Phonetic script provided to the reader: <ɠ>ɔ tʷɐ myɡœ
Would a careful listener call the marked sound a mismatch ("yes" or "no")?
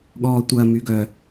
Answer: no